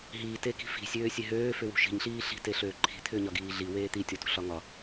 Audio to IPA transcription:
ɦ iː t e k i̤ f i̤ sʲ øː sʲ e ɦ øː f ʏ w ṳ ʃ i̤ ɲ ɬ iː ɬ i̤ t e ɬ øː ǃʰ i̤ t̪ʰ ʏː ɲ ɒ ɡ iː ɮ i w eː t̪ i tʲ ɔ t ṳ ɬ ɒ ŋ ɒ

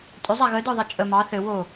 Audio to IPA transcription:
tʼ ʏ zˤ a ɣ ə d ə˞ ðˤ ɛ t͡ʃʼ ə m ɑ θ ɘ w o

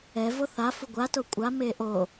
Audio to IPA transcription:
ɛ v o θ a f u ɡʷ a t o kʷʼ a m e ʔ o

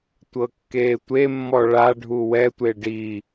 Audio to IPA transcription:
tʷ ɤ kː e tʷ e mː ɔ ɭ a ɖʱ u w ɛ tʷ e ɖ i

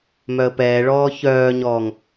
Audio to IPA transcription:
m œ ə̯ p ɛː ɭ ɔː ç œː ɲ ɔː ŋ

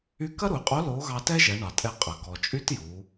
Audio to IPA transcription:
y˧˥ k ɐ˥ ɾ u˩˧ ɪ̯ qʼ o˧˥ l o˧˥ ɣ ɑ˧ t ɛ˥ ʒ ɛ˩˧ ɳ ɑ˩ tʼ ɛ˧ qʼ ɐ˩ ɡ ɔ˩ t͡ʃʼ y˥ t j u˩˧

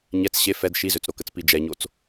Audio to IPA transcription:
ɲ ɛ t͡s ɕ e f ɛ d ʃ i z ø t͡s ɾ o k ə t͡s p i d͡ʒ ɛ ɲ o t͡s

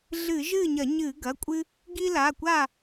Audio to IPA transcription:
ɮ ɨ˧˩˧ ʒ ɨː˥˨ ɲ ɐ˧˩˧ ɲ ɨː˧˩˧ ɡ ɐ˩˧˩ kʷʼ ɨ˦ | ɡ i˦ l a˩˧˩ kʷ a˥˨

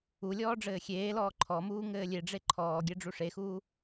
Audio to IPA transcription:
u lʲ ɔː ɖ͡ʐ ɘː xʲ eː l ɔː ǃʰ ɔ m uː ŋ ɘː lʲ e ɖ͡ʐ e ǃʰ ɔː ɡʲ ɛ ɖ͡ʐ u ʂ e x uː

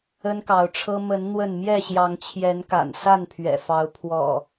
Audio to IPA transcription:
ə˦ n k ɑ˨˦ ʊ̯ ʈ͡ʂʰ ɤ˦ m ə˨˦ n n̪ w ə˥˨ n m j ɛ˥˨ ɕ j ɑ˨˦ ŋ t͡ɕʰ j ɛ˨˦ n k a̰˨˩ n s a˥˨ n pʰ ɥ ɛ̰˨˩ f ɑ˨˦ ʊ̯ pʰ w ɔ̰˨˩

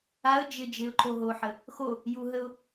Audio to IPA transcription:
a ə̯ d͡ʒ ɪ d͡ʒ ɪ ʊ̯ ǃ o ɦ o ħ ə | x o | j u ɦ ə ʊ̯

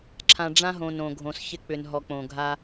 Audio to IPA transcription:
ǁʰ ã˨ ɖ͡ʐ ã˦ ɦ õ˨ n õ˨ ɡʱ õ˨ s ç ɪ˦ k͡p ʏ˨ n ɦ ɔ˨ k͡p õ˨ ɡʱ a˦

